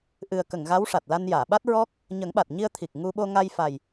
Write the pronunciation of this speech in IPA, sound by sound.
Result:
ʔɨ˨˩ə̯kə˨˩˨ŋ ɣa˧˥wʂa˨˩t̚la˧n jaː˨˩˨ɓa˦˥t̚ɹɔ˦˥k̚ | ɲə˨˩˦ŋɓa˨˩t̚ɲi˧ə̯t̪ʰi˨˩k̚ ŋu˧ɓo˧ ŋa˧jfa˨˩j

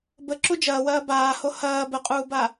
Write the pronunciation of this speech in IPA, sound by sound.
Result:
bəǁu d͡ʒɐːwɐː baːho hɐː bəqʼuːba

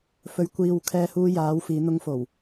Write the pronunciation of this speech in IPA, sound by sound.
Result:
fɵ˨˧ɥ kʷiː˨w kʰɛː˧huː˧jaː˨˧w fiː˨˧n̪ʊ˧ŋfo˨˩w

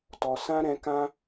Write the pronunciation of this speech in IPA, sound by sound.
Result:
tɔ˨sã˦ɾɛ̃˧ kã˦

